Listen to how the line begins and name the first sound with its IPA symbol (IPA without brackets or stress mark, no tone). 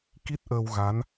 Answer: k